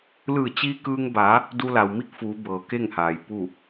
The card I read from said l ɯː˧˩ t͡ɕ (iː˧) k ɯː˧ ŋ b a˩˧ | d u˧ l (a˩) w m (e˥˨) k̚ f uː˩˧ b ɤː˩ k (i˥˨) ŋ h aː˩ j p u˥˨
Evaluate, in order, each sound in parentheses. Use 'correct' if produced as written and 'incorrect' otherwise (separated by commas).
correct, correct, incorrect, incorrect